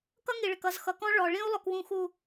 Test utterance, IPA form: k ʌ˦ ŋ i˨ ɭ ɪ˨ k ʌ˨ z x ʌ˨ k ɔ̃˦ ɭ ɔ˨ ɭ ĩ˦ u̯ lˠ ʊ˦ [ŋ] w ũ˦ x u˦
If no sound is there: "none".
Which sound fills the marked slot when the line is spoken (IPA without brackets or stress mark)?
k